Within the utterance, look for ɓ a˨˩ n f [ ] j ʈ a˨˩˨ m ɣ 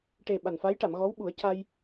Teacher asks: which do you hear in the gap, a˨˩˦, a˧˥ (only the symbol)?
a˧˥